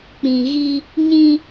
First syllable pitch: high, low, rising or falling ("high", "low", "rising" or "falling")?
low